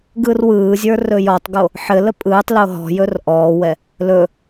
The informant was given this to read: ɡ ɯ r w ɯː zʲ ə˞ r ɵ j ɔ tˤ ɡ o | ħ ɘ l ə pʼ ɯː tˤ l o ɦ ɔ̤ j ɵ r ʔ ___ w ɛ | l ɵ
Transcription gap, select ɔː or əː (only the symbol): ɔː